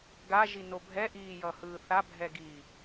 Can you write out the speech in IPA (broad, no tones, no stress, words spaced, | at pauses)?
ɡaʒino bʱɛʔiːjʌhɯː θabʱɛɡiː